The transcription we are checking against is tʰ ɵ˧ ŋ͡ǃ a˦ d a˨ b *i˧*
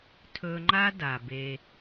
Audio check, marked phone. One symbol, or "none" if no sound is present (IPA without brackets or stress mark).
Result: e˧